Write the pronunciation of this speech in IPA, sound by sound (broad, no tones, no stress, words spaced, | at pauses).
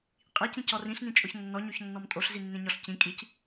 qʼi cĩcɔrĩɬ nĩt͡ʃʼʊçnːɔ ɲoçnːɔmtʼoɬ zinːĩɲɔɬcĩ kʼic